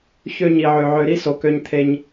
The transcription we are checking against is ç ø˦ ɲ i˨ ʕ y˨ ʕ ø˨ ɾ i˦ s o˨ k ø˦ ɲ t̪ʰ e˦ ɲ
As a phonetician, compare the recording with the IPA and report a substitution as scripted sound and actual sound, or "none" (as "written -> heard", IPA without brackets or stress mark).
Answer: y˨ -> ø˨